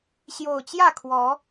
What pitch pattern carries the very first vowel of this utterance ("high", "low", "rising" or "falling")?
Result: low